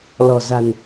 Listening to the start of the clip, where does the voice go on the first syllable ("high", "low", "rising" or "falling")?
low